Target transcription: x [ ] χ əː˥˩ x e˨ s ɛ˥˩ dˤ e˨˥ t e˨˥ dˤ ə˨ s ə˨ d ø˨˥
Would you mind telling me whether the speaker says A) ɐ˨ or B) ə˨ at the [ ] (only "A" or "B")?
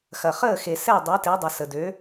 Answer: A